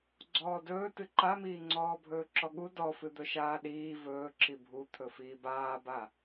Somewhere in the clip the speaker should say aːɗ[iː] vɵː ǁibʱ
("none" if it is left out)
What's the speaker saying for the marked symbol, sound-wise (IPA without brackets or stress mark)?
iː